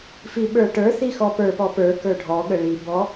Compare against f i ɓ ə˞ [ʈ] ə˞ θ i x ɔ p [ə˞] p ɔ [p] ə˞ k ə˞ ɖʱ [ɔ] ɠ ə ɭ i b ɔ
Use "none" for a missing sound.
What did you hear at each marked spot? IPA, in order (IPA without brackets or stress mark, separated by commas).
ʈ, ə˞, p, ɔ